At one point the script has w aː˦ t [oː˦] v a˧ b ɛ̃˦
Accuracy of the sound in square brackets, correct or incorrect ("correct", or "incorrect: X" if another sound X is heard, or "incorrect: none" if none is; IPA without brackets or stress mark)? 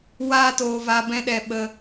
incorrect: oː˧